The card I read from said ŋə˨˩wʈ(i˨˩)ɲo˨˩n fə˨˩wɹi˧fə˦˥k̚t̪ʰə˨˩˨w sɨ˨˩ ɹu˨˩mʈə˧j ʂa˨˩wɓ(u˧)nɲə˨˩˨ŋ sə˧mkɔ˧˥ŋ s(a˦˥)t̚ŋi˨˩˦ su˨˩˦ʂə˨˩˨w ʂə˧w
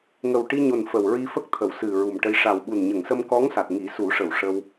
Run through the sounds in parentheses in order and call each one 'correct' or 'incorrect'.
incorrect: i˧, incorrect: u˨˩, incorrect: a˨˩

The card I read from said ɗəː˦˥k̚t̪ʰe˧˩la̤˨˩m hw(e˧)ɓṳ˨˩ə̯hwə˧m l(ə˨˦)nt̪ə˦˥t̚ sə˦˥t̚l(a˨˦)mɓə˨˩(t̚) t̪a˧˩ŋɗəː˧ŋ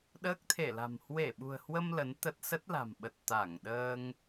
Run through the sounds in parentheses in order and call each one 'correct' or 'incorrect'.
incorrect: e˧˩, correct, incorrect: a̤˨˩, correct

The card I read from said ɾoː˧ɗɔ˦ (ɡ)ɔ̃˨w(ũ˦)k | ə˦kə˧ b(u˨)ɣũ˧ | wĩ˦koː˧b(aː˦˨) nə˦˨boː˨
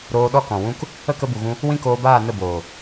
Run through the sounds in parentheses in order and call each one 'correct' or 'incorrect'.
incorrect: k, correct, correct, correct

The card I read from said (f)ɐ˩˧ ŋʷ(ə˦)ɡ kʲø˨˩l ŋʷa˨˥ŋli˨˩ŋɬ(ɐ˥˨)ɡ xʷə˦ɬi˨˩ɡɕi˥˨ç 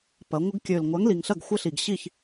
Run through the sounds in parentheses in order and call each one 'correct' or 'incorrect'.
incorrect: p, correct, correct

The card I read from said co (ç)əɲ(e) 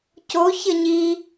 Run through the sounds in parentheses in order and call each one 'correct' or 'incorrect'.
correct, incorrect: i

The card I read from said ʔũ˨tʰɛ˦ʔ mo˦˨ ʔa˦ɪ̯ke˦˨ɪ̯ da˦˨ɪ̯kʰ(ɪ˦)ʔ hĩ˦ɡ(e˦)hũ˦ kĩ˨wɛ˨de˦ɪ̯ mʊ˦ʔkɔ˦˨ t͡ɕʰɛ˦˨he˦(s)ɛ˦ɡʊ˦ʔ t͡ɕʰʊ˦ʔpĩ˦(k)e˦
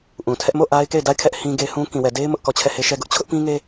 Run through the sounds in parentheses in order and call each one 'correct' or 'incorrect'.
incorrect: ɛ˦, correct, incorrect: ʃ, incorrect: ŋ

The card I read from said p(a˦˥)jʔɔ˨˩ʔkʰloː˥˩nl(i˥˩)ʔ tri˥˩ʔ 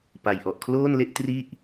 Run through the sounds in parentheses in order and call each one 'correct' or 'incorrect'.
incorrect: a˨˩, incorrect: e˥˩

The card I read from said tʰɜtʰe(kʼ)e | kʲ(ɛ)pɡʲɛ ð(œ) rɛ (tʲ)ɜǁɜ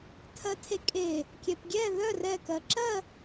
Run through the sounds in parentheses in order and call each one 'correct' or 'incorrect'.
correct, correct, correct, incorrect: k

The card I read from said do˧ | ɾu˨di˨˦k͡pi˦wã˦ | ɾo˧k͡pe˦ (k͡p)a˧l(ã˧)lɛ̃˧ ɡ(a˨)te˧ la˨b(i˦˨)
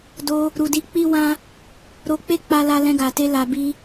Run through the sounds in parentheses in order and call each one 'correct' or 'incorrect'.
correct, incorrect: a˧, correct, incorrect: i˧

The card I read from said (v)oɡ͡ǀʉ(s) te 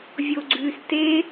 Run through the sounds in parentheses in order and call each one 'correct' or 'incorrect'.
incorrect: vʲ, correct

